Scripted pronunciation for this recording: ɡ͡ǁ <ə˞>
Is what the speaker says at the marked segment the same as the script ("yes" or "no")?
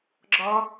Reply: no